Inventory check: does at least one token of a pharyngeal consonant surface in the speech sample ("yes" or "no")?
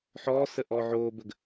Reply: yes